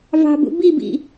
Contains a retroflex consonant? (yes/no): no